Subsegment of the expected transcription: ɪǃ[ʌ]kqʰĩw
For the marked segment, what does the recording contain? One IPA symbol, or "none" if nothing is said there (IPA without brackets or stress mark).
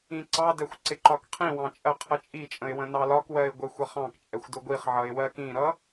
ɒ